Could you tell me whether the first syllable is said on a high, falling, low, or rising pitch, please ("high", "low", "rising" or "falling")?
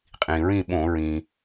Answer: low